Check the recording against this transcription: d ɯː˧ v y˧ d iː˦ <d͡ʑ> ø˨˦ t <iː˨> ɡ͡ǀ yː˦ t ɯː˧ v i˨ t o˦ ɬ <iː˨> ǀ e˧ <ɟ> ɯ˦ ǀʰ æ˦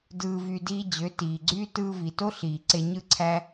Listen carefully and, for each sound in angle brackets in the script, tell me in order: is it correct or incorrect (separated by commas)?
correct, correct, correct, incorrect